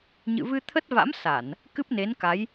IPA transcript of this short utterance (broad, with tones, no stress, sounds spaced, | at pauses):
ɲ ɨ̰˧˨ v ɨ˧ t̪ʰ ə˦˥ t̚ v a̰˧˥ m s a˧˩˨ n | k ɨ˦˥ p̚ n e˨˦ n k a˨˦ j